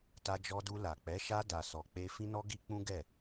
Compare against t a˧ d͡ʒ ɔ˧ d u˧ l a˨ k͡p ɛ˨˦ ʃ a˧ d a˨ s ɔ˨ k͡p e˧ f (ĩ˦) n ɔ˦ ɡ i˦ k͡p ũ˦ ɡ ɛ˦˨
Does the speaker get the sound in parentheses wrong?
no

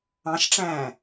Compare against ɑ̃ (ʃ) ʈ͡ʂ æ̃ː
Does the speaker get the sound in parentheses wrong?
no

